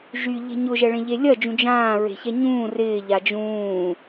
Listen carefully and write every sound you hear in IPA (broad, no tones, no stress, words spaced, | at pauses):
ʒyʎe̤ ɲʊʒɛɭẽʎe lʲɐd͡ʒũ d͡ʒãːɹe̤çɛ ɲũː rɪːʎa d͡ʒũː